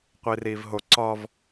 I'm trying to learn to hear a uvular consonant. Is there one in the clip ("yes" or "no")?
yes